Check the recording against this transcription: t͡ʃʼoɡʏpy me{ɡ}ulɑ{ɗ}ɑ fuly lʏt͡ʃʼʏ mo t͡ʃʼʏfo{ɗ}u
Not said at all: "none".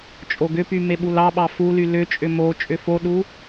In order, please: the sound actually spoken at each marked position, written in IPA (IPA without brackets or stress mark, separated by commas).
ɓ, ɓ, ɗ